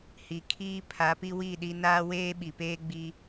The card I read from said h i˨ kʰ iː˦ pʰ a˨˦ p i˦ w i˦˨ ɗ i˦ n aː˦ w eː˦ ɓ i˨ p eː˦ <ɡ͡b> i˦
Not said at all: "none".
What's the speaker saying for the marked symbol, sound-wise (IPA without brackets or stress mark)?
ɡ͡b